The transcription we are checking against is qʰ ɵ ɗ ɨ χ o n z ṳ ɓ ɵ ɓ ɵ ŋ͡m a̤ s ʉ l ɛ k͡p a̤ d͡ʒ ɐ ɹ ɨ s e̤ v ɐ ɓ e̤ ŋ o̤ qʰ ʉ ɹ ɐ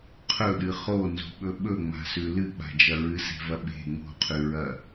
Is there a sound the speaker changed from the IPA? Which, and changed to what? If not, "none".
ɛ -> ɨ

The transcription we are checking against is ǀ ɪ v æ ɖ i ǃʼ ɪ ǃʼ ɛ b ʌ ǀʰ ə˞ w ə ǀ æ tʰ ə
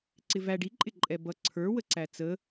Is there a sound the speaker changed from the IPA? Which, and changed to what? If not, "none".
tʰ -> t͡s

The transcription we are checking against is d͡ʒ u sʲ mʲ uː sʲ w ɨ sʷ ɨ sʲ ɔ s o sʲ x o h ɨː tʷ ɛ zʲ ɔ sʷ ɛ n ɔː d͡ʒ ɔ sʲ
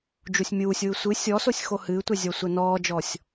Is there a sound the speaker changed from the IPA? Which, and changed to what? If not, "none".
none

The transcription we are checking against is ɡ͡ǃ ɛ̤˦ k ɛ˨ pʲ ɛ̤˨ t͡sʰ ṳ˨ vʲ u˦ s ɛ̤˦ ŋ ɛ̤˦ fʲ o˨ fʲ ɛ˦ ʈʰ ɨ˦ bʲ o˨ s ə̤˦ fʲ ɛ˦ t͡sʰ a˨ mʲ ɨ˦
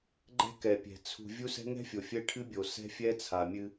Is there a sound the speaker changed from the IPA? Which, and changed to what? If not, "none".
ə̤˦ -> ɛ̤˦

